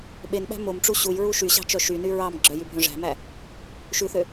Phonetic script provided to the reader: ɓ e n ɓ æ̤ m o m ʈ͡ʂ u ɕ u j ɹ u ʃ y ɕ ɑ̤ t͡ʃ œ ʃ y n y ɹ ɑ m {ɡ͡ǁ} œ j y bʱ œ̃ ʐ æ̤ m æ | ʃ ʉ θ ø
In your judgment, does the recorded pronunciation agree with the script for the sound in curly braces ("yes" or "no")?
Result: yes